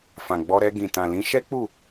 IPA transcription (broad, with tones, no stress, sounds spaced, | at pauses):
f ã˨ ɡ͡b ɔ˧ ɾ ɛ˧ ɡ ĩ˨ t ã˨ l ĩ˨˦ ʃ ɛ˦ k͡p u˦˨